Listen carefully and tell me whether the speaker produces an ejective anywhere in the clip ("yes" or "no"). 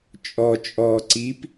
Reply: yes